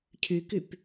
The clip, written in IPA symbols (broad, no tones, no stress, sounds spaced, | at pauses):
cʰ y k y p